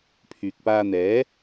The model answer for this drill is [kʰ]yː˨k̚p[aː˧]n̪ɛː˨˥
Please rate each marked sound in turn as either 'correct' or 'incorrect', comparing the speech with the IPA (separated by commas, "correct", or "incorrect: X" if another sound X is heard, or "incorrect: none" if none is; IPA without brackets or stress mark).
incorrect: pʰ, correct